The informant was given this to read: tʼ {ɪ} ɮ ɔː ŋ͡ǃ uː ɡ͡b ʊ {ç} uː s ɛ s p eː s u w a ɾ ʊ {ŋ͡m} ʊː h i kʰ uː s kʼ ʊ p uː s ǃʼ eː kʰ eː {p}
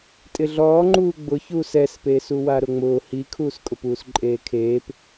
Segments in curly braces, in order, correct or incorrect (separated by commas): correct, correct, correct, correct